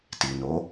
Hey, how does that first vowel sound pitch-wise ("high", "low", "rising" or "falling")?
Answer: low